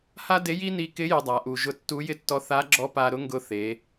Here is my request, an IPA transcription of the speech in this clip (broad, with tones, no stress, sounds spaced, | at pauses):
h a˥ d e˧˥ j i˥ n i˧ k ɪ˧˥ j ʊ˧ dˤ a˩˧ ʔ u˩ ʒ ʊ˧˥ tː u˧˥ j ɪ˥ tː ɔ˧˥ θ a˧˥ ɡ͡ǁ ɔ˧˥ p a˧ ɾ ʊ˧˥ ŋ ɡ ʊ˧ θ e˩˧